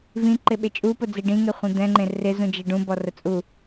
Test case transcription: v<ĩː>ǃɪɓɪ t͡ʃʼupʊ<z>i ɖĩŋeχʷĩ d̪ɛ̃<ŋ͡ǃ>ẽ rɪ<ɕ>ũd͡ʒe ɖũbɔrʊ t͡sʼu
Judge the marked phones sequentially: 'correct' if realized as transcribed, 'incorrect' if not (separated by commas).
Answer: incorrect, incorrect, correct, incorrect